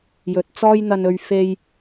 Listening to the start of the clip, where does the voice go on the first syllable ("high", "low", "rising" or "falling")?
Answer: low